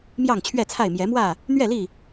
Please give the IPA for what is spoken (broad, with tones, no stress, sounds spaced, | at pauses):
m j ɑ˥˨ ŋ t͡ɕʰ ɥ ɛ˥˨ t͡sʰ a˥˨ ɪ̯ m j ɛ˨˦ m w ä˥˨ | n̪ ɥ ɛ˥˨ l i˥˨